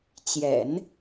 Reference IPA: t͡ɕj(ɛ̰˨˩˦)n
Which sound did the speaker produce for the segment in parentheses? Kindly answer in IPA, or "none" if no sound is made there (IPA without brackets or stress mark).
ɛ̰˨˩˦